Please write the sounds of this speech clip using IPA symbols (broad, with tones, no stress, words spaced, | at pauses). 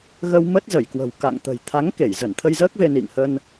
ɣə˧wmə˦˥t̚ zə˧˩jkwə̤˨˩wka̰˧˨ŋ t̪ə̤˨˩jt̪ʰa˨˦ŋ ke˧˩jzə˧˩nt̪ʰə˧jzəː˦˥k̚ ve˧nḭ˧˨ŋhə˧n